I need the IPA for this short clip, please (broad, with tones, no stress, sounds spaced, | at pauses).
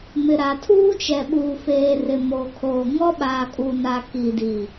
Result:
m ɪ˨ ɾ a˨ tʰ uː˦ t͡ʃ ɛ˨ ɓ uː˨ f eː˨ r ɪ˨ m oː˨ kʰ oː˨ ŋ ɔ˦ ɓ aː˨ kʼ uː˨ n a˨ k i˨ d i˨